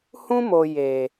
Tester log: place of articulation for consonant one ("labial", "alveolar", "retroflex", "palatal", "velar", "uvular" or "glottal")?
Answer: glottal